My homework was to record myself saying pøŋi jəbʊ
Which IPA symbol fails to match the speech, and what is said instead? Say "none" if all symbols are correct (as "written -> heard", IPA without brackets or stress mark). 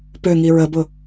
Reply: j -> ɹ